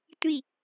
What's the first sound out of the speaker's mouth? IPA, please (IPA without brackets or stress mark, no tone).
tʷ